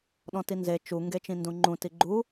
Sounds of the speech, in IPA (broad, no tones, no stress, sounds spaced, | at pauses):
ɗ ɔ̃ t i n z e t͡ʃ u ŋ ɡ e t͡ʃ ĩ n d ũ ŋ͡ǃ ũ t i ɡ͡ǃ u